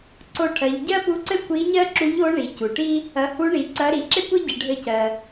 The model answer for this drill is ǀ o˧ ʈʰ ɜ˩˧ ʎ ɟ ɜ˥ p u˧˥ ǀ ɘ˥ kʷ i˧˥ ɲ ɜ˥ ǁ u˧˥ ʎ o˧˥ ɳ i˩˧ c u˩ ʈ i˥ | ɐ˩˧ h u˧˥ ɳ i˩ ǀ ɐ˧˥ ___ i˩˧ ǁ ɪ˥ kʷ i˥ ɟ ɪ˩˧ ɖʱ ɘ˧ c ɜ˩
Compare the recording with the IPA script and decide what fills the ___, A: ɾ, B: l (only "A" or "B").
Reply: A